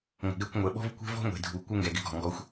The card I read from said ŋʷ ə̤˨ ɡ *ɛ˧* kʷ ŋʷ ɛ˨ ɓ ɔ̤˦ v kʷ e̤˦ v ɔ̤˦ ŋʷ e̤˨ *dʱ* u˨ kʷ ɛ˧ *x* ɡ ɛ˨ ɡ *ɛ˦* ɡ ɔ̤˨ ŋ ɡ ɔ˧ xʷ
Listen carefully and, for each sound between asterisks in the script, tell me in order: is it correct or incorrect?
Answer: correct, correct, incorrect, incorrect

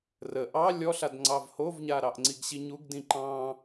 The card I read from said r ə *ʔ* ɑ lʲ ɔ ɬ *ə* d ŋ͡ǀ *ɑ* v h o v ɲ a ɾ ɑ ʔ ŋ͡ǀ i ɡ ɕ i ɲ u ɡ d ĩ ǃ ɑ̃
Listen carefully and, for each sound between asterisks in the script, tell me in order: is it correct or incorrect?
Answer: correct, incorrect, correct

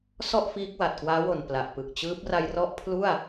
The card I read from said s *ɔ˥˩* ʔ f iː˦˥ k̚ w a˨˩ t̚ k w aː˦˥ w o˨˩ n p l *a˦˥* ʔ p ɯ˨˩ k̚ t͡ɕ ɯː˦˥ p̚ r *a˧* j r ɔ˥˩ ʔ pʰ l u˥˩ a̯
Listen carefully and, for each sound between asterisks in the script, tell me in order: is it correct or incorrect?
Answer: correct, incorrect, correct

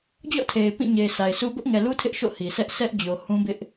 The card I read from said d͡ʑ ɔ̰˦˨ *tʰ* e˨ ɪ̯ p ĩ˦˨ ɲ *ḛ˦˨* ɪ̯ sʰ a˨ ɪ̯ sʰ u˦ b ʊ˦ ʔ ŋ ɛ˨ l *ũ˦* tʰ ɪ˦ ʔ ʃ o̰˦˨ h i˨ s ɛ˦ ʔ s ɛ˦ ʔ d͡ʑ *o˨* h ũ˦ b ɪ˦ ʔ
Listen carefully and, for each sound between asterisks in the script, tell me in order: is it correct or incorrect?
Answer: correct, incorrect, incorrect, correct

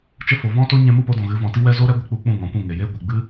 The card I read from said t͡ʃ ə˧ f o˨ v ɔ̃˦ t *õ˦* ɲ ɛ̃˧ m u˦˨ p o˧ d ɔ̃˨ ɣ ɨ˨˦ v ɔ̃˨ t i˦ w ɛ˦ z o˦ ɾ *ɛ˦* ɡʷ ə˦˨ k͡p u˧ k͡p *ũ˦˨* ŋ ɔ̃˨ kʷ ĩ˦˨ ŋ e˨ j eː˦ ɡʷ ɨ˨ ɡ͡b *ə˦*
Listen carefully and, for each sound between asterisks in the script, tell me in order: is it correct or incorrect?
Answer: incorrect, correct, correct, incorrect

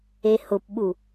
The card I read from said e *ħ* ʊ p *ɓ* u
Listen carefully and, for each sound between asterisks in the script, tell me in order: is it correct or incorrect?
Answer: incorrect, correct

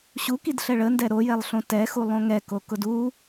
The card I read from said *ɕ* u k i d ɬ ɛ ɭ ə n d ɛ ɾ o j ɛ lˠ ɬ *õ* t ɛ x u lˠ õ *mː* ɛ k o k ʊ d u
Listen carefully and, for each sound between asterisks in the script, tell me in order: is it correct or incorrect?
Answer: correct, correct, incorrect

